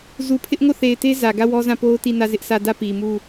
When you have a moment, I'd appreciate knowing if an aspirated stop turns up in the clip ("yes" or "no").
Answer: yes